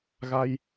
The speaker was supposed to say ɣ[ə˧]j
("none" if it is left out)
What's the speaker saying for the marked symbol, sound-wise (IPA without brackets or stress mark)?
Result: a˧